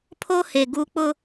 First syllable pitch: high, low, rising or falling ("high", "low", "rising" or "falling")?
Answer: high